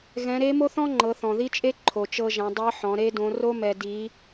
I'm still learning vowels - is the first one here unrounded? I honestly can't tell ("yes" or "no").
yes